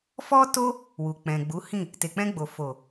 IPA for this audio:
f ɔ˦ t o˦ | w u˨ k͡p ɛ̃˨ ɡ͡b u˨˦ h ĩ˦˨ | t e˨ k͡p ɛ̃˧ ɡ͡b o˨ f o˨

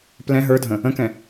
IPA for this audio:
p l ɛ̃ ɦ ə˞ dʱ ə̃ | ə̃ k ɛ̃

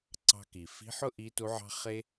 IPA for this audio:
ǀ ɑ̤˧ k i˩ f i̤˧˥ ħ ʊ˥ ʔ iː˧˥ t u˧˥ ʕ ɑ̤˥ χ e˥

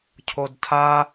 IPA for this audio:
cʰ o d tʰ a

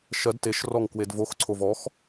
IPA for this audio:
ʃ ɜ d t e ʃ r ɔ ŋ k w e d v o x ǀʰ o v ɔ x

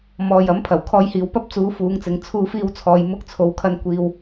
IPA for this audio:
m ɔː˨ j ɐ˨˥ m pʰ ɐ˨˩ w kʰ ɔː˧ j h iː˨ w p ɐ˥ p̚ t͡s uː˨˧ f uː˨˧ ŋ t͡s ɪ˨˧ ŋ t͡sʰ uː˧ f iː˧ w t͡sʰ ɔː˨ j m ʊ˧ k̚ t͡sʰ o˨˧ w kʰ ɐ˧ n kʷ iː˧ w

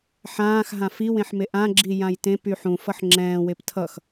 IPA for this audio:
ħ ãː x ɦ ã f i w ẽ ħ m e ʔ ã ɡ͡ǁ i j ã j t ẽ p y ħ ũ f ʌ ħ ŋ͡ǁ ɛ̃ː w e p tʰ ʌ x

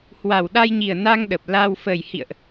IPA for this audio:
h w a˨˩ w ɗ a˧ j ɲ i˨˩ ə̯ n a˧ ŋ ɗ ə˨˩ p̚ l a˧ w f ə˨˩ j h ḭ˧˨ ə̯ ʔ

